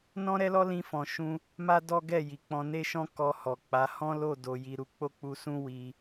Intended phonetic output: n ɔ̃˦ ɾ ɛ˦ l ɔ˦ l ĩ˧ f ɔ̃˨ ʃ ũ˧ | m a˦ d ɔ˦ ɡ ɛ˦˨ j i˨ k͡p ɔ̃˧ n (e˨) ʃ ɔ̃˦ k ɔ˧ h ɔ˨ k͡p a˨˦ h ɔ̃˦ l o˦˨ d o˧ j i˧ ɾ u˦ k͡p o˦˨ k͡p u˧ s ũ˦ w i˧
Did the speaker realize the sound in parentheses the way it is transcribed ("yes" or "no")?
no